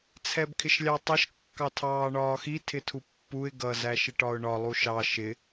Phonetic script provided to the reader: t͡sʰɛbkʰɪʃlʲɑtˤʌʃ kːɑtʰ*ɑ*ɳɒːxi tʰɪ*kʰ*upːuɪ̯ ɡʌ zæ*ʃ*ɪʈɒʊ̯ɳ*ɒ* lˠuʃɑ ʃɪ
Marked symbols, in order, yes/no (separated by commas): no, no, yes, yes